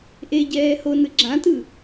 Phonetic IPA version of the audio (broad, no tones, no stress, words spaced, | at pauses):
ʔe ɟɛːhonɯ ɡ͡ǁãtɯ